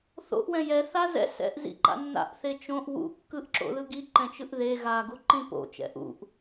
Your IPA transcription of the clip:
θ o̰ ʔ w ɛ̃ j ɛ θ a z ɛ̰ s ɛ̰ ʔ z ḭ ǃ a̰ nː a̰ ʔ θ e t͡ʃ õ ʔ w ṵ kː ɯ ʔ ǁ o̰ ð ɯ ɡ i ǃ ɛ̃ t͡ʃ ɯ ʔ ð e ɣ a ɡ u ǃ ĩ p o̰ t͡ʃ ɛ̰ ʔ ṵ ʔ

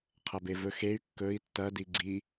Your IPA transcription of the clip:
qʰ ɐ b e v ɵ x e y̯ kː ɵ i̯ tː ɐ d i ɡ͡ǀ i

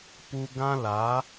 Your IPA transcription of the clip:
p u˧ ɡ ã˦ l a˨˦

